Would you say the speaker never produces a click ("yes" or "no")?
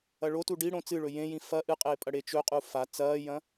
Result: yes